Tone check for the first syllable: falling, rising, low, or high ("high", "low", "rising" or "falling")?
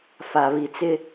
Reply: low